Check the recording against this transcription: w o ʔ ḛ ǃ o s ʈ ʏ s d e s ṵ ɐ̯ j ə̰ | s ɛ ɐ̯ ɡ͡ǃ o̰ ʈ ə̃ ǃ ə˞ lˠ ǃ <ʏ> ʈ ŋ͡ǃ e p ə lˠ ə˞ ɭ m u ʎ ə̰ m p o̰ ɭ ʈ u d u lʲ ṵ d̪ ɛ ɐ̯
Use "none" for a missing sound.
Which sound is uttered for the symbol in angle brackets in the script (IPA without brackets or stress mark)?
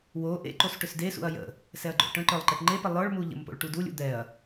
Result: ɛ